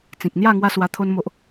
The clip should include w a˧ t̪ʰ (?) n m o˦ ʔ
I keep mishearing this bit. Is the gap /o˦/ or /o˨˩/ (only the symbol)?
o˦